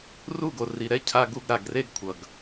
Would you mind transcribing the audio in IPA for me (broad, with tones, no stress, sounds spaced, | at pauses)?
r u˦˨ ɡ o˨ r i˨ ɾ ɛ˦ cʰ a˦ ɡ u˦ ɡ ɾ a˨ ɡ r e˦ ɡ kʷʰ ʌ˨ ɡ